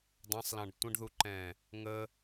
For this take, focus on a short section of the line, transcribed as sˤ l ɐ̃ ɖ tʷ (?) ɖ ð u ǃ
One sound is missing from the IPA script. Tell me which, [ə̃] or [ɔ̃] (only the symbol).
ə̃